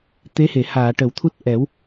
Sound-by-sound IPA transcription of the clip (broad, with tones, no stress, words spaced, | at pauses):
t̪e˧˥he˨˩˨ haː˨˩˨ʈə˨˩˨w t̪ʰu˦˥t̚ʔɛ˨˩˦w